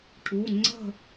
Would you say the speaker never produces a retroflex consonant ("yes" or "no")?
no